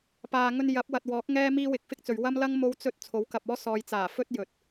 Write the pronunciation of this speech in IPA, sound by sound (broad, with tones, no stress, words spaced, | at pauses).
paː˨ŋɵ˧n jɐ˨˥p̚wɐ˨t̚wɔː˨˥k̚ ŋɛː˥miː˥wɪ˧k̚ fɪ˥k̚t͡sɵ˨ɥ wɐ˥mlɐ˥ŋ mo˥wt͡sɵ˥t̚ t͡sʰo˨˥wkɐ˨p̚ɔː˥ sɔː˨jt͡saː˨˩ fɵ˥t̚ jɵ˨t̚